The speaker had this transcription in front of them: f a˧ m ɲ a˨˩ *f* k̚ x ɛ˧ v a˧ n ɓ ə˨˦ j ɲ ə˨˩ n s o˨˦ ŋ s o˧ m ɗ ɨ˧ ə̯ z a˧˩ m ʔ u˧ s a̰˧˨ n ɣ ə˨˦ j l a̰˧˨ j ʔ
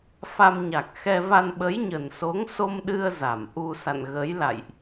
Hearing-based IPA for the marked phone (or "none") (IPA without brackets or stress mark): none